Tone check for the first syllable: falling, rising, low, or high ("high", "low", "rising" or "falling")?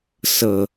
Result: low